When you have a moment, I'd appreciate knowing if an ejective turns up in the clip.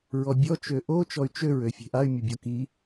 no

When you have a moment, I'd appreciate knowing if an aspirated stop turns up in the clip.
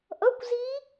no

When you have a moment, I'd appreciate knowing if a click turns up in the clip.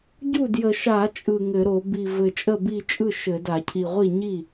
no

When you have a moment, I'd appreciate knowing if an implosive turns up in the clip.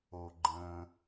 no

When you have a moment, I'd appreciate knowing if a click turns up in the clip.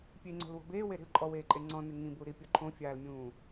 yes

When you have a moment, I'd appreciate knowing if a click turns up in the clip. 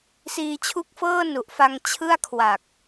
no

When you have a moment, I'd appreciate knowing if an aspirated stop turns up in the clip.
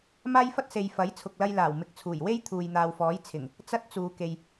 yes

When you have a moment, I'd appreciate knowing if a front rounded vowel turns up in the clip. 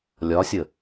no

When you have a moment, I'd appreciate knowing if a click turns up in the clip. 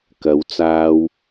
no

